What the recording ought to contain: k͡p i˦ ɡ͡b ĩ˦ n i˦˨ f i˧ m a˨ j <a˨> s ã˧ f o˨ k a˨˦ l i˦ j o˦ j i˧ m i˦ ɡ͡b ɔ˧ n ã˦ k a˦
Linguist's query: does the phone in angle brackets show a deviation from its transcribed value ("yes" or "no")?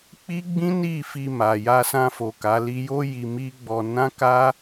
yes